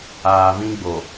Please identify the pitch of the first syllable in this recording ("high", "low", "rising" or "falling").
low